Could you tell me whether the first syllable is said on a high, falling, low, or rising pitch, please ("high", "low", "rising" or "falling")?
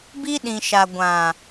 high